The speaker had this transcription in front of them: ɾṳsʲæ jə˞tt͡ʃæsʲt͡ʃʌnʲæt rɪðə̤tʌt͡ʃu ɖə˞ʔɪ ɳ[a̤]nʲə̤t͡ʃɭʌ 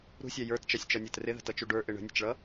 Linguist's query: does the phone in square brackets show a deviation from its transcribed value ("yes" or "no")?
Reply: yes